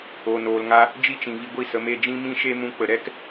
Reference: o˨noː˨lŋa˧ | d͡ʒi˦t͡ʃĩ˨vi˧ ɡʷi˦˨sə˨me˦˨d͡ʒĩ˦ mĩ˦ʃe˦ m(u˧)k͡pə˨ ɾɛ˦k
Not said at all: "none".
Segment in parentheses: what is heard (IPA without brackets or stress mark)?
ũ˧